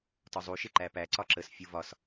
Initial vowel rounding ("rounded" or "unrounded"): rounded